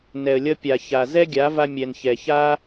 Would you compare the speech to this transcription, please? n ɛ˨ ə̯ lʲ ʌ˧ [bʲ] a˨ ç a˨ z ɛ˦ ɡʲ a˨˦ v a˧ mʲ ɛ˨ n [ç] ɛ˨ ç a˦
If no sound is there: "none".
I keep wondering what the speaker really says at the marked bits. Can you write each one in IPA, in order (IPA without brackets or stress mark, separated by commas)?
pʲ, ç